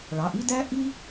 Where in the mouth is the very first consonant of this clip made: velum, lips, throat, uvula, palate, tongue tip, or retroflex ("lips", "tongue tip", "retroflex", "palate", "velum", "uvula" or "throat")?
retroflex